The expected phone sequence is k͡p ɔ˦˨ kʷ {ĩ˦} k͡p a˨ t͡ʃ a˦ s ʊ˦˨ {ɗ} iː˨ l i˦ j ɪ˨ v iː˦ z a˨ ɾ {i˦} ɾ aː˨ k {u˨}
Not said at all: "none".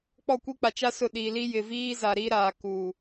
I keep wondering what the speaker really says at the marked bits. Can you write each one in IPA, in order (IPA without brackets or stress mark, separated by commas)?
i˦, ɗ, i˦, u˨